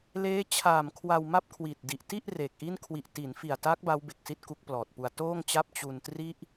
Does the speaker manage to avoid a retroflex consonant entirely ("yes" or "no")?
yes